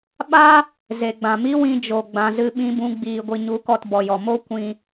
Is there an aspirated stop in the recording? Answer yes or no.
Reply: no